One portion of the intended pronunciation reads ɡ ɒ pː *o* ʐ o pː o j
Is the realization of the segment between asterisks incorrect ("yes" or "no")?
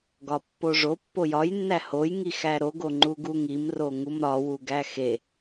no